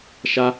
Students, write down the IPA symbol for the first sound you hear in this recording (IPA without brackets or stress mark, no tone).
ʃ